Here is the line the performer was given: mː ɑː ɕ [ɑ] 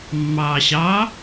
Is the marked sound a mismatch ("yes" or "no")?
no